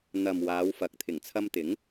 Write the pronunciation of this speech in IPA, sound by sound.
n̪ɐ˨m waː˨˧wfɐ˨k̚ t̪ʰɪ˨˩ŋt͡sʰɐ˧mt̪ɪ˨˥ŋ

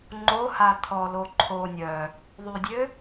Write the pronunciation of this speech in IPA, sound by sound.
ŋ͡ǃoha t̪ʰɔlo ǃʰo nʲœ | ðˤydʲø

